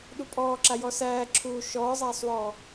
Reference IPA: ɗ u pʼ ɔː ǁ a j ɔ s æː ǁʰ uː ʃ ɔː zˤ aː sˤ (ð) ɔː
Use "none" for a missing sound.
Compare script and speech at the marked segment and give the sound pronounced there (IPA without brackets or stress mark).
w